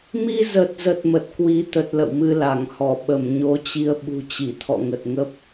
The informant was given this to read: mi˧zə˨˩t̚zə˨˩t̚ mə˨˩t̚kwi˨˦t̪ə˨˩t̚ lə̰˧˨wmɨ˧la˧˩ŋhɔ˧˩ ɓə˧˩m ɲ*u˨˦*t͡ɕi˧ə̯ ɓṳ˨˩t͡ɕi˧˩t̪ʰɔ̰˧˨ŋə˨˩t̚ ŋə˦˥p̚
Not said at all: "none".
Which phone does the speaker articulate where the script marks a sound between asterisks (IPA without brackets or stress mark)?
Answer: o˨˦